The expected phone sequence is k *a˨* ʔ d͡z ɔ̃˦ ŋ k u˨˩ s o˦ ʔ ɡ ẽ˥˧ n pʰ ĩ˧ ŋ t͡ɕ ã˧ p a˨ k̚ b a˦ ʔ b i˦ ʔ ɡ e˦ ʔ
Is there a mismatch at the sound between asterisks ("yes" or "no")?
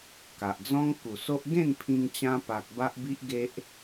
no